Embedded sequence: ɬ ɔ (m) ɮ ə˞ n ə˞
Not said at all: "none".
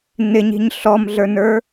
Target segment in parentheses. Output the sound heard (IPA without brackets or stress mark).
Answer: m